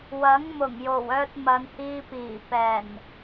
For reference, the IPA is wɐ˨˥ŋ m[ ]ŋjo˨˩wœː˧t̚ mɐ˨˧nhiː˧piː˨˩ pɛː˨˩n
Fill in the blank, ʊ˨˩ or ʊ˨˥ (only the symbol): ʊ˨˩